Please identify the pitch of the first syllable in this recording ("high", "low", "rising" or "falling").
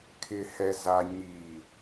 low